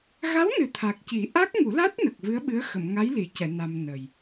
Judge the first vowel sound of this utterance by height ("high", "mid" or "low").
low